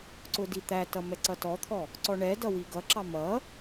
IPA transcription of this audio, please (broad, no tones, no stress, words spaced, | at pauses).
ǀʊdit̪ætʌ mɛǀʌtɔt̪ʰɔ | ǀɔɳɛdʌ wiɡʌǁɑ mʌ